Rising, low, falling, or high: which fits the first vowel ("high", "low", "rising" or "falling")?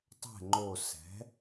falling